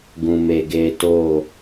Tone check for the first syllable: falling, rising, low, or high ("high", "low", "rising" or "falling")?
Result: low